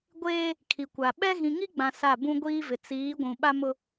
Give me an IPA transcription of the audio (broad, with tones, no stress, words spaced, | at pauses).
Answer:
ɡʷeː˦ | kʰi˨kʷa˨ ɓɛ˦ ɣĩ˨ŋi˦ɡ͡bã˨ sa˦˨ bũ˦ɡʷiː˦vɪ˨ t͡siː˨˦ɡʷũ˨ ɓa˦mʊ˦